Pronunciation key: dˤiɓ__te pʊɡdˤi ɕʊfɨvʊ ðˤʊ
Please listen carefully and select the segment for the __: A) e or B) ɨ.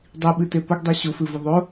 B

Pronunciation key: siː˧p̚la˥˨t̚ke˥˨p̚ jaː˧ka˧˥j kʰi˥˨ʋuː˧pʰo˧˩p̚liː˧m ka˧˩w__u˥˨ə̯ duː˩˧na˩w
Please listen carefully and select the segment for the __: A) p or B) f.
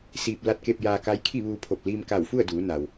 B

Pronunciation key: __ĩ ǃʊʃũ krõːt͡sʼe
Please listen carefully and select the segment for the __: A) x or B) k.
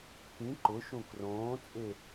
B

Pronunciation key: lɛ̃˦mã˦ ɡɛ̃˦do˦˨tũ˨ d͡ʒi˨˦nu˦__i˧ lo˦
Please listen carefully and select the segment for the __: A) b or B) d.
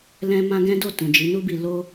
A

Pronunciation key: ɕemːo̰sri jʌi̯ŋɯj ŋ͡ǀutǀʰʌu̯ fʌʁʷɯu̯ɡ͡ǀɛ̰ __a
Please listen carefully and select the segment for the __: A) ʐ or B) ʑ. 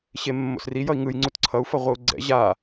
B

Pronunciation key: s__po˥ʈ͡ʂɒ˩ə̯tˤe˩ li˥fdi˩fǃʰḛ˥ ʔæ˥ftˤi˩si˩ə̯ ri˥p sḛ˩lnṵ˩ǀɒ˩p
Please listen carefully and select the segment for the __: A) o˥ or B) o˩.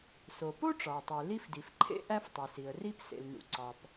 B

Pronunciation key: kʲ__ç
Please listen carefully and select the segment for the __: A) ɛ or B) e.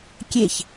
B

